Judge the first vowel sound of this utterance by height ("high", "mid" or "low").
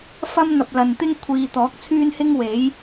low